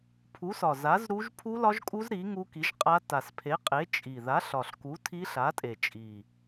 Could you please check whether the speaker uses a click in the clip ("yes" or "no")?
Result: no